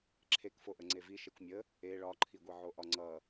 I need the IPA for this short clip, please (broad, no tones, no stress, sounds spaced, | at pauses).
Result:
ǁʰ e k f o ʔ ə ŋ͡ǀ e v i ʃ e kʷ mʲ ə | e ɭ ɒ ǃʰ i ɡʷ i ʕ o ʔ ɒ ŋ͡ǀ ʌ